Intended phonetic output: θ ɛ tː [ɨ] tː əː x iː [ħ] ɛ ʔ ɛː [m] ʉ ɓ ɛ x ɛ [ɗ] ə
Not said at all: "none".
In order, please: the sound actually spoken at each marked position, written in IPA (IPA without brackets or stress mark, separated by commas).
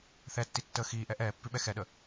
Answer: i, ʔ, pː, ɗ